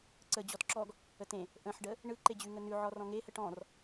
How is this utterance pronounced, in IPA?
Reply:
ǀ ə d͡ʑ ɔ t ǁ ɔ ɡ | ə t ẽ | ʔ ə̃ ħ ɖ ə | ɳ ɯ ǃ e d͡ʑ ʉ ŋ ə n ʉ ʕ ɔ r ɔ̃ ŋ e h ə ʈ ɔ̃ r

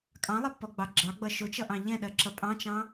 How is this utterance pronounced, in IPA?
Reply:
kʼ ɑ̃ lˠ ʌ pː ɔ ɡ͡b ɑ ɡ͡ǁ ɑ ɡ͡b ʌ ʃ ʊ t͡ʃ ʌ ʔ ɑ̃ ʎ ɛ̃ ɗ ɜ ǁ ʌ pʼ ɑ̃ t͡ʃ ɑ̃

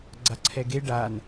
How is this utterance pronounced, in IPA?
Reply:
ɡ͡ǀ a ǀʰ ɛ ɡ e ɖ a n

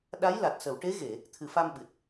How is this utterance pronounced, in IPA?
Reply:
ɗ a˧˥ j l a˨˩ t̚ s ə˨˩˨ w ʈ e˧˥ ɣ e˨˩˨ | t̪ʰ ɨ˨˩˨ f a˧ m ɓ ɨ˨˩ t̚

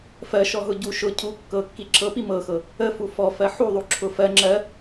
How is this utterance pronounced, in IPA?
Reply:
f ɜ ʃ ɔ ɦ ʊ ɟ u ʃ ʊ cʰ u kː ɤ kː i ǁʰ ɤ p i m ɤ x ɤ | ə f u f ɔ f ɜ ħ u ðˤ u ǁʰ ʊ f ɜ ŋ͡ǁ ɜ

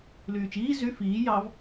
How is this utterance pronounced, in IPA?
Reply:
l yː t͡ʃ iː z y f iː j ɑ v

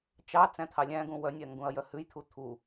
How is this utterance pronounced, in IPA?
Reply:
t͡ʃ ɑ t͡s æ̃ t̪ʰ ɑ lʲ æ̃ ɡ ũ w œ nʲ æ ŋ ɡ ũ ɐ̯ j œ h ʉ j t̪ʰ u t̪ʰ u

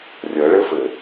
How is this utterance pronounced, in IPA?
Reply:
rʲ ɤ ɭ ɘ f ɘ

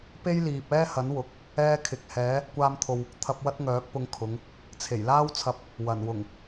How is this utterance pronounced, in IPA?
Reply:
p e˥ j l iː˨ p̚ ɛː˥ h ɐ˨˥ n w ʊ˨˥ k̚ | ɛː˧ kʰ ɪ˨ k̚ h ɛː˨˧ | kʷ aː˧ m t̪ʰ o˨ w | t̪ʰ ɐ˧ p̚ w ɐ˥ t̚ ŋ œː˨˥ k̚ p ʊ˧ ŋ kʰ ʊ˨˧ ŋ | t͡sʰ e˨˩ j l aː˥ w t͡sʰ ɐ˧ p̚ | w ɐ˨˩ n w ʊ˨˩ ŋ

